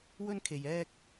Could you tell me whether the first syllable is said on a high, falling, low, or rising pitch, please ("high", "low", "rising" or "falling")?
high